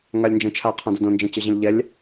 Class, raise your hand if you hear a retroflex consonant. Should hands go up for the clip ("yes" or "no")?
no